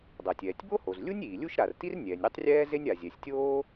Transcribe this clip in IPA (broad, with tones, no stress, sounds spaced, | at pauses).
dˤ a˩ tʲ ɛː˩ tʲ b o˥ h o˩ z lʲ u˥ nʲ iː˩ lʲ u˥ ʃ ɾ a˩ r t i˥ r nʲ ɛː˩ nʲ ɾʲ ɛ˥ tˤ rʲ ɛː˥ z e˥ nʲ a˩ zʲ ɛ˩ sʲ tʲ oː˥